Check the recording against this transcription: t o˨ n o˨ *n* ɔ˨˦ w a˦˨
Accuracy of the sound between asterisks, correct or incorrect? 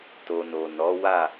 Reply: correct